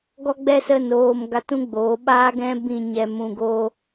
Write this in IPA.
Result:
ɡɔ˦ɡ͡bɛ˦sə˦˨n oː˧m ɡa˧tũ˦ɡ͡boː˨˦ɓaː˦ ɡɛ̃˦bĩ˦˨ɲɛ˧ mũ˧ɡoː˦

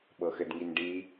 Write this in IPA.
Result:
ɓɤxɘdŋinɖi

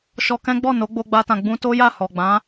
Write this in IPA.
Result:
ʃɔ˧kɛ̃˦ ɡ͡bɔ˦˨no˨˦ɡ͡bo˧ ɡ͡ba˦tã˧ ɡ͡bũ˧ to˦ja˦˨ hɔ˨ɡ͡bã˨˦

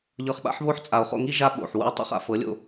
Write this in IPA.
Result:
ʎɤ˧χɓa̰˦ħβo˦ħ t͡sʼa˨o̯χo̰˧ŋi˦ ʒa˦ɓo̰˨ħ wṵ˧e̯tˤṵ˧χa̰˨ fɤ˨˦lʲo̰˧

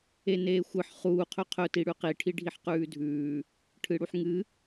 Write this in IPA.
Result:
eneːxʷɨħ χuː qʰɵqʰɵ tiɽʉqi ʈʰiɖʱiħqʉːdʱʉː | ʈʰɨɽuħŋɨ

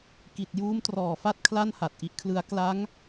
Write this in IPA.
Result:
ki˨˩t̚juː˦˥mtrɔː˨˩fa˥˩t̚ kʰla˥˩nha˨˩t̚ʔi˦˥ʔkʰlɯ˦˥a̯ kla˦˥ŋ

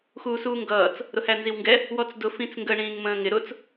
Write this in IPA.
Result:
xuːsuːŋɡʌːt͡s | ɾʊhænziwŋɡɛ | wɔt͡sdʊ fĩt͡sŋɡə ɳĩːŋmə̃ːŋɪ ɾʊt͡s

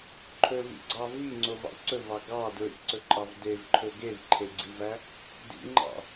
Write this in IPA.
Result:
ǃʰɵvḭɡ͡ǀɑ viŋ͡ǀovɑ̰ ǀɵvɑ ɡɑ dɹḭǀɵǃʼɑv devǃʰɵ ɡevǃʰeɡ͡ǀivæ | dḭŋ͡ǃɑ̰

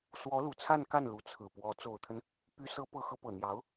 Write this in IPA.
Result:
swɔ˧˥lu˨˩t͡sʰa˥˧nka˥˩n lu˧˥t͡sʰɹ̩˨˩pwɔ˧˥ t͡so˨˩ʊ̯t̪ʰə˦n | py˧˥sɤ˧˥ pɤ˧˥xɤ˧˥pɤ˨˩n̪jɑ˧˥ʊ̯

